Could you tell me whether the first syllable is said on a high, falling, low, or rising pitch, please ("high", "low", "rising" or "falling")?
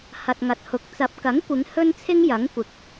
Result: low